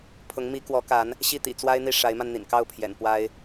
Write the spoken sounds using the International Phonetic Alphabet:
pʰ ʊ˧˥ ŋ m i˧˥ k w ɔ˧˥ k a˧˥ n | ɕ i˥˩ t̪ ḭ˨˩ t͡s w a˥ ɪ̯ n̪ i˥˩ ʂ a˧˥ ɪ̯ m a˧ n n̪ ḭ˨˩ n k ɑ˥˩ ʊ̯ pʰ j ɛ̰˨˩ n p w a˥ ɪ̯

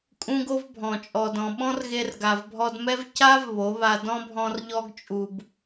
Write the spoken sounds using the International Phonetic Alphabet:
kʼ ũ˦ ɡ o˦ v bʱ ɔ̃˨ t͡ʃʼ ɔ˨ d ɔ̃˨ ɓ ɔ̃˦ r ɣ e˧ r ɡ a˨ v bʱ ɔ˧ d m ɛ˦ v c a˦ v β o˨˦ β a˧ d ɔ̃˦ bʱ ɔ̃˧ r ʎ ɔ˧ ɡ t͡ʃʼ u˨ b

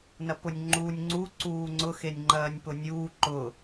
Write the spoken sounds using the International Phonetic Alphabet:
n ɐ p ʊ nʲ ŋ͡ǃ uː nʲ ŋ͡ǀ u ǀ uː ŋ͡ǀ ʊ x e nʲ ŋ͡ǃ ɐː nʲ p ʊ nʲ uː ǃ ʊ

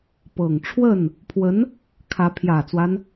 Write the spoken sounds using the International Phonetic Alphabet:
p ɤ˨˩ ŋ ʈ͡ʂʰ w ə˥˩ n | pʰ w ə˧˥ n | kʰ ä˧˥ pʰ j ä˨˩ t͡s w a˦ n

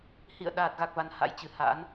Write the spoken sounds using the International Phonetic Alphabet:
h ḭ˧˨ ə̯ ɗ aː˨˩ t̚ ɣ a˨˩ k̚ v a˨˩ n h a̰˧˥ j t͡ɕ ɨ˨˩ h a̰˧˥ n

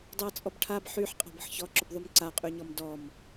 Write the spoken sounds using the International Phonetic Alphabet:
dˤ e ɐ̯ t͡sʼ ɔ b ʈʰ a b ħ y ħ qʼ a̤ b ə̤ ħ ç ɔ ǁ ʊ b ðˤ y m ǀ a qʼ y ɲ ɔ m d ɔ m

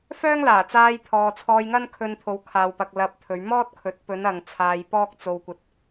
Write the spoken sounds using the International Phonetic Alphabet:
f œː˥ ŋ l aː˨˩ t͡s aː˧ j t̪ʰ ɔː˨ t͡sʰ ɔː˧ j ŋ ɐ˥ n kʰ ɵ˧ n t̪ʰ o˨˧ w kʰ aː˨ w p ɐ˨ k̚ l ɐ˧ p̚ t̪ʰ ɵ˨˧ ɥ m ɔː˥ t̚ kʰ ɵ˨˥ t̚ p ɵ˨˧ n ɐ˨ ŋ t͡sʰ aː˧ j p ɔː˥ k̚ t͡s o˧ w kʷ ɐ˧ t̚

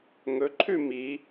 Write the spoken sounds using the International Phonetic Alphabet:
ŋ ɵ ǃʰ ʉ m i

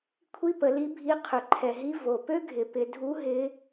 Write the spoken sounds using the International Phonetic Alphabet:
kʷʰ i˥ p ə˩˧ l i˧˥ bʱ i˧˥ qʰ ʏ˩ ǃʰ ɛ˩ ɦ i˧˥ v o˩ p ø˥ ɡʱ ɪ˩˧ p ɪ˩˧ dʱ u˧˥ ɦ ɪ˧˥

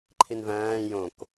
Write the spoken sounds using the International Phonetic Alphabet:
ǃʰ i n v æ̃ː j õ k

